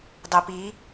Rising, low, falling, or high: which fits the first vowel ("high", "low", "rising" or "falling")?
low